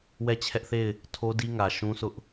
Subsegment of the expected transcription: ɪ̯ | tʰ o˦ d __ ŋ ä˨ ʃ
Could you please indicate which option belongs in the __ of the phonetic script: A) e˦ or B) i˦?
B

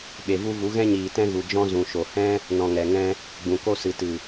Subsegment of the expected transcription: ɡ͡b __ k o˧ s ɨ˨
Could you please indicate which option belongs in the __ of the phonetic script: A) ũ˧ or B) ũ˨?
B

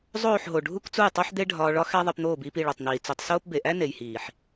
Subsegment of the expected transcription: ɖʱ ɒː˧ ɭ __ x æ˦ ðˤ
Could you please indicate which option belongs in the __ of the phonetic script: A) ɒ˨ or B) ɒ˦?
B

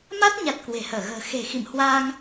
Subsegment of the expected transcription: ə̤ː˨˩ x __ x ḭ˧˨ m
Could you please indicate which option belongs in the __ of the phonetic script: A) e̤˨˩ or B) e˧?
A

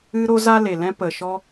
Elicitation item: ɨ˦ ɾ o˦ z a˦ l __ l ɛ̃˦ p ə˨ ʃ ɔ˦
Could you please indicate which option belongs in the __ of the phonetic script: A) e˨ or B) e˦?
A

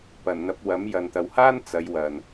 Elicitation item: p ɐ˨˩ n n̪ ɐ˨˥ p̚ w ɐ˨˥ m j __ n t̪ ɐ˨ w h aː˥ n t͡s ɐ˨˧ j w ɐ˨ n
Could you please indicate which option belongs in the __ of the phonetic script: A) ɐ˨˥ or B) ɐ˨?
B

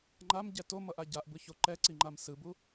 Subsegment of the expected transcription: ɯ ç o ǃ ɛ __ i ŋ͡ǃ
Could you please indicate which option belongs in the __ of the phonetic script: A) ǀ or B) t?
A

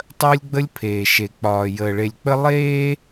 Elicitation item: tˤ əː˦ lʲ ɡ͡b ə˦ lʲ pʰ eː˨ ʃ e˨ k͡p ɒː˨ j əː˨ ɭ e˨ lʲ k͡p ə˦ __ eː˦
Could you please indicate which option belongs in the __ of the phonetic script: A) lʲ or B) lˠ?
B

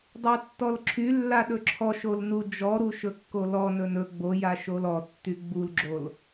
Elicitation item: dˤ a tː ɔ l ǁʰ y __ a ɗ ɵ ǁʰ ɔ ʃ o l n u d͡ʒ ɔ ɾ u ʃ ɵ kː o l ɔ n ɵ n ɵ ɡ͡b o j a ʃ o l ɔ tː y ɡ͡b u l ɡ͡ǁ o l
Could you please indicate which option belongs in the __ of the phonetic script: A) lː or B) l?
A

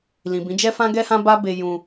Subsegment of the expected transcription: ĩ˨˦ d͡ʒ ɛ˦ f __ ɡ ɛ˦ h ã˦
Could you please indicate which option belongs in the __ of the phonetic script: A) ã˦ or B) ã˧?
A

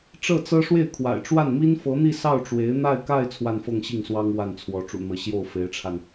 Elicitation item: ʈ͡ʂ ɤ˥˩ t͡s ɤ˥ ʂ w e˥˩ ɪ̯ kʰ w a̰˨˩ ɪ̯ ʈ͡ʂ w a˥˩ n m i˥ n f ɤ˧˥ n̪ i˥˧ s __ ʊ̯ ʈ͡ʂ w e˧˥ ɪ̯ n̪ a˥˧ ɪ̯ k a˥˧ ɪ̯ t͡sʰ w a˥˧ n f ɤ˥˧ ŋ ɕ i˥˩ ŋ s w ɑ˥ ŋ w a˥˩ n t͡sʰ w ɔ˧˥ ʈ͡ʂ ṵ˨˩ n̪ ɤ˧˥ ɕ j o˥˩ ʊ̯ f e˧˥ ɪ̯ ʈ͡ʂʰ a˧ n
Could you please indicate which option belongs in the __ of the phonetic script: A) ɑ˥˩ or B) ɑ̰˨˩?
A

